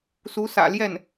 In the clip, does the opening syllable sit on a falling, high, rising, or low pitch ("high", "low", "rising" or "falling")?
rising